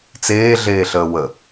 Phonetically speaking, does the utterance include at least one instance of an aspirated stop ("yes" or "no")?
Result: no